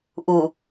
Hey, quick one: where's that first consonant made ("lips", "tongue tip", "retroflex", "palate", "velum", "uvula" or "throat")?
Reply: throat